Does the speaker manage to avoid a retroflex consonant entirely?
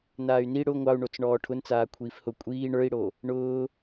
no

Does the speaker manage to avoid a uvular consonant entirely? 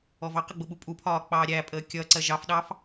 no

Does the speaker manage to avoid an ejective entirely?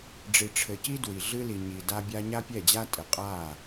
no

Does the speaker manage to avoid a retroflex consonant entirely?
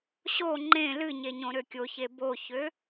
yes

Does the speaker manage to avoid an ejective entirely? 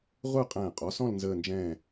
no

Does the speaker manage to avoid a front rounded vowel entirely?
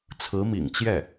yes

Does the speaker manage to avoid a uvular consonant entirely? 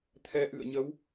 yes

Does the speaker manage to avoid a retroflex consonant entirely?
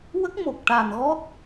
no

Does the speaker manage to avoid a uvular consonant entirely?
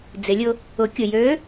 yes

